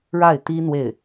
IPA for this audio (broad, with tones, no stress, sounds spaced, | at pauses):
ɻ a˥˩ ɪ̯ t̪ i˥ n̪ w e˥˩ ɪ̯